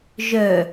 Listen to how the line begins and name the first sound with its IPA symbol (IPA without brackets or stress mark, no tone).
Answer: ʒ